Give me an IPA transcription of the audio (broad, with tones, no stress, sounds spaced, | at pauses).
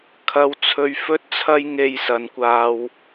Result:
kʰ ɐ˧ w t͡sʰ ɵ˧ ɥ f ɵ˥ t̚ t͡sʰ ɐ˥ j ŋ e˧ j s ɐ˨˧ n kʷ aː˧ w